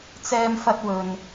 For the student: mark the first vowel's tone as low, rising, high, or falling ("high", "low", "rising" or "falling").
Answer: high